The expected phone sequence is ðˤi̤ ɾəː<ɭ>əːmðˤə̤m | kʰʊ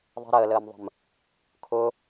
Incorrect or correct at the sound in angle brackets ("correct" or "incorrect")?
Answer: incorrect